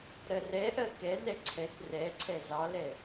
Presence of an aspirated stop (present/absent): present